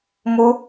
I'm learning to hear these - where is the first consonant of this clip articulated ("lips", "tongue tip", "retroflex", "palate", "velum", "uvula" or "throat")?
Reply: lips